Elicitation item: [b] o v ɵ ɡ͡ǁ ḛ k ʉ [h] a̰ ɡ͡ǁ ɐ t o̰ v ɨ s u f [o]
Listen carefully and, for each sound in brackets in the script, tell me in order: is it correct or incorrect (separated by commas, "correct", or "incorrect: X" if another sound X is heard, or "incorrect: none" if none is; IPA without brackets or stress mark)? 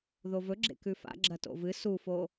incorrect: ð, incorrect: f, correct